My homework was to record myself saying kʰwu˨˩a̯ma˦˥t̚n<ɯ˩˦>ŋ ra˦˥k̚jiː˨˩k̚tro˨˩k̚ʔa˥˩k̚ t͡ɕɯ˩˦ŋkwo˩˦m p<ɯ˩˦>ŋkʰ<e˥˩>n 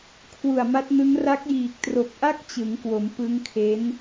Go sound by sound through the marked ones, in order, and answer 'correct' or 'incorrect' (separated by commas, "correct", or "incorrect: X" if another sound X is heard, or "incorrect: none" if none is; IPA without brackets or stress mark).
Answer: incorrect: ɯ˦˥, incorrect: ɯ˦˥, incorrect: e˦˥